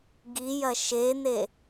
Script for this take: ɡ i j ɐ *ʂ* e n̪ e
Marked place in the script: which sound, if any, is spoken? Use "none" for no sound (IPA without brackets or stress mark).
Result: ʃ